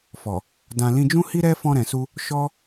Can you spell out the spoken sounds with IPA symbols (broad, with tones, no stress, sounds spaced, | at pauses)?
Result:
f ɔ˨ | d ã˨ l ĩ˧ d͡ʒ ũ˦ h i˦ ɾ ɛ˦ f ɔ̃˧ ɾ ɛ̃˨ s u˧ | ʃ ɔ˦